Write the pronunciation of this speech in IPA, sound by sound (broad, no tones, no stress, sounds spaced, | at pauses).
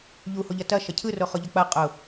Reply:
ʎ u h o ʎ ɐ t ɐ ʃ ɐ cʰ ɯ r o χ ʊ ʎ ɐ k͡p ɐ qʼ ʊ